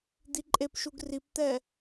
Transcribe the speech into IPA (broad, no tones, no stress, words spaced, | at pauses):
d̪iǃʼepʃuɡ ript̪ɛ